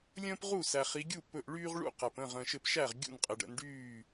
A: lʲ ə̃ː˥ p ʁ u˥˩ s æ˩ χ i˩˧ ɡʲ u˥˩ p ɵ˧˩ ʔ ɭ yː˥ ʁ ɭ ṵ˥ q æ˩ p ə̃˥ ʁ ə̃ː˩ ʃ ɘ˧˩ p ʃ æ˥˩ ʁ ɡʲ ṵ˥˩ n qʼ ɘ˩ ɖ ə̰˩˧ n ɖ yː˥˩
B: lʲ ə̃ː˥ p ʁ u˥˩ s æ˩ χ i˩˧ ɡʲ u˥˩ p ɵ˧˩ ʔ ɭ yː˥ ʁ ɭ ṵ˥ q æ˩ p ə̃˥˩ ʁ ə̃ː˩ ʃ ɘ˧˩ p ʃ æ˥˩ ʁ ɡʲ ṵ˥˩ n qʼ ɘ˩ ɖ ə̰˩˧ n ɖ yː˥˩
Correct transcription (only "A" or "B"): B